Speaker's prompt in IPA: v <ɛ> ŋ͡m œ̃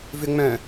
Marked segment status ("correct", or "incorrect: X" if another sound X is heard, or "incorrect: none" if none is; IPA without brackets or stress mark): incorrect: ʏ